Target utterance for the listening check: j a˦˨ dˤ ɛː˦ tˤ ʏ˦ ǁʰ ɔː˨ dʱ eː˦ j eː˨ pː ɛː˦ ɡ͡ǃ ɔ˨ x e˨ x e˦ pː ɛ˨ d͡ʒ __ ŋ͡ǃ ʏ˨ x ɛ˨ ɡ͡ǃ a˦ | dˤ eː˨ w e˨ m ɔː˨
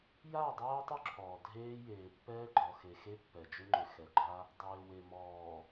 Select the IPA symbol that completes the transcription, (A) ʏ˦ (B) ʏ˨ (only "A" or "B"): A